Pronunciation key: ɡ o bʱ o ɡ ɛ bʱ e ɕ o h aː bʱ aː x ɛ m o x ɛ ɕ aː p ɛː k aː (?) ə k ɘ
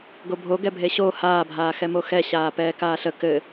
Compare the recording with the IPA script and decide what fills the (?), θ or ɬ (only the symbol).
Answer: ɬ